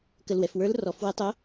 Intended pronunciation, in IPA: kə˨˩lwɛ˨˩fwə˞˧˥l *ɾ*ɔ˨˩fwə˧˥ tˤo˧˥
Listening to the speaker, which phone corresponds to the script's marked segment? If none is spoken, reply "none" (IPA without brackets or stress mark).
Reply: r